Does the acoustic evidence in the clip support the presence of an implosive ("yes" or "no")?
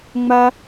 no